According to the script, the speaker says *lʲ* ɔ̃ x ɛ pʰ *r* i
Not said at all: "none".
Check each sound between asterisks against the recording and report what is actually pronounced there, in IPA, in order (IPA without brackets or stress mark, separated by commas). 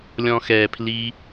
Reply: lʲ, l